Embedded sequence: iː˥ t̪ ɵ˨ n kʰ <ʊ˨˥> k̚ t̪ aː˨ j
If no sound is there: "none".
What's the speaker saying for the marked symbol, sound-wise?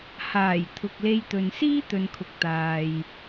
ʊ˨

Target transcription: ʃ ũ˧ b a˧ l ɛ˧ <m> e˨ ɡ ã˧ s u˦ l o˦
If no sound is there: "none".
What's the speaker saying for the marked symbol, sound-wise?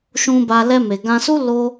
m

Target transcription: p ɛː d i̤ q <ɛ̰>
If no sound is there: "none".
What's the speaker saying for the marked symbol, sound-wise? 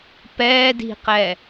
ɛ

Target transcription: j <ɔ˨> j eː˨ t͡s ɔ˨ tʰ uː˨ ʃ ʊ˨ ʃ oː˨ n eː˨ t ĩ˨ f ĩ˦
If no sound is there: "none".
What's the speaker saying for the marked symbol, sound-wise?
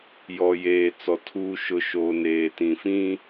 ɔ˨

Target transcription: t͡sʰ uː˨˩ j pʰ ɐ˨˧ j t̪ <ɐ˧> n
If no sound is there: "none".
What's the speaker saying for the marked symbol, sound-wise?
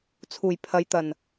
ɐ˨˩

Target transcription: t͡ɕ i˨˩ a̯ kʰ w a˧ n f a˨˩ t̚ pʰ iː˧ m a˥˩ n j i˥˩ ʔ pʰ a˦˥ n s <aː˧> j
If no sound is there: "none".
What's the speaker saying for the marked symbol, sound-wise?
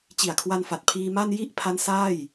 aː˥˩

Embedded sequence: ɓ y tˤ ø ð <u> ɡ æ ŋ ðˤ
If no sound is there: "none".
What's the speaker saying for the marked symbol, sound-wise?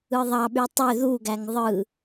u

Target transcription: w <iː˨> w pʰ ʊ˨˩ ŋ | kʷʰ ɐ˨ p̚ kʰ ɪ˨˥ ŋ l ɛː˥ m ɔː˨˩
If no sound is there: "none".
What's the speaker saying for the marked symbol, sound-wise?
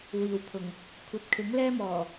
iː˨˩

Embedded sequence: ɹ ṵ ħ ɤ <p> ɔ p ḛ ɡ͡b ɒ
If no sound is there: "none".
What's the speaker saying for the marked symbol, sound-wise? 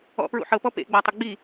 p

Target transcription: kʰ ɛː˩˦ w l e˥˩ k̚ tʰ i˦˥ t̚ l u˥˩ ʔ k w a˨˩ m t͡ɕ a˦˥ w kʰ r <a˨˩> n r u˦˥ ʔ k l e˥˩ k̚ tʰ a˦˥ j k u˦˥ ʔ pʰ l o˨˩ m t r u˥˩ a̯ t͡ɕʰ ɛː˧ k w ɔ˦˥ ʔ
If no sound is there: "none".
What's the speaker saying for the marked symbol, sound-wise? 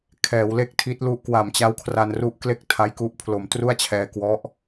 a˧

